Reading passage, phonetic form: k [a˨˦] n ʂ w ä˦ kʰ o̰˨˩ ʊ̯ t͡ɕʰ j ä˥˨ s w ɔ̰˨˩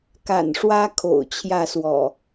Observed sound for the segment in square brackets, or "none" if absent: a̰˨˩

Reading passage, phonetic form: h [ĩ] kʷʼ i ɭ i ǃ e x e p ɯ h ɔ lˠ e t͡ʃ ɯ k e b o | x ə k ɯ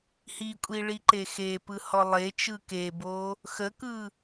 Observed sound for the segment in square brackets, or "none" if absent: i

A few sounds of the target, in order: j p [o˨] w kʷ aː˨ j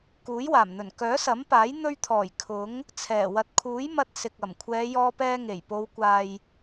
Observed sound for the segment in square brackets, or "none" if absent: o˨˧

